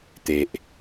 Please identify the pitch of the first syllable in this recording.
high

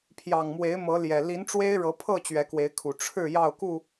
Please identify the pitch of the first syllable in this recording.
low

